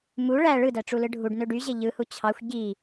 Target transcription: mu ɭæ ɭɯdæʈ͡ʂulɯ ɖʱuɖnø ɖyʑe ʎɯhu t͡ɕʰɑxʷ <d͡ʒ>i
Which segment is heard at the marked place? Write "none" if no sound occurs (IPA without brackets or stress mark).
ɟ